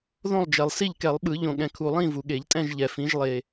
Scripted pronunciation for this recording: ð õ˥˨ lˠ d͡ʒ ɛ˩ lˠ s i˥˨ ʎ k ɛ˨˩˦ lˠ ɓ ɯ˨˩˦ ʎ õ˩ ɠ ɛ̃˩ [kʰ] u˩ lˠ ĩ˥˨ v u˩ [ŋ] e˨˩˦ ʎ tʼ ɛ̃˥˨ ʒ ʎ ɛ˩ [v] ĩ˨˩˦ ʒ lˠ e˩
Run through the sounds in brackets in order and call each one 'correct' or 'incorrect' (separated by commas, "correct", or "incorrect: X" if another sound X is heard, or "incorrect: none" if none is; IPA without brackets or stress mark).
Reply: correct, incorrect: ɠ, incorrect: f